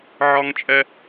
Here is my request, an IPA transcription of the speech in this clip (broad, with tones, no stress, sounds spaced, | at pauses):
ʕ ɒ˥ ŋ t͡ʃʼ ɛ˥